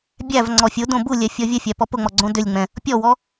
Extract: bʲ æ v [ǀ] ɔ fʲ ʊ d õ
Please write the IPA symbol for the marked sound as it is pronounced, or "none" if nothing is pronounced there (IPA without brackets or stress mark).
ŋ͡ǀ